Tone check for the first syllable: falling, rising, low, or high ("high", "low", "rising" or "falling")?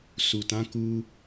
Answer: low